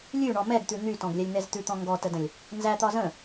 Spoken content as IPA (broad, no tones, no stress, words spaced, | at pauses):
lʲʉɳɔ mɛɡt̪ʉ n̪ytɔ̃ɡlʲɛlʲn̪ɛz t̪ʉt̪ɔ̃ ŋɡɔtədə̃lʲ | nzæt̪ɒ zə̃